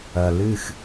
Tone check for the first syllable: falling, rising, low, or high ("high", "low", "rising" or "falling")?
low